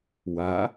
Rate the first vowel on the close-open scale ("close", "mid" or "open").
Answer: open